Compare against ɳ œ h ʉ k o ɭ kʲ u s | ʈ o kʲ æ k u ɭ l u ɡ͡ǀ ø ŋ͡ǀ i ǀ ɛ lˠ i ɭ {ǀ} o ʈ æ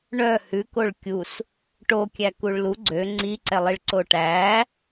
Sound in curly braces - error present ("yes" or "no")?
no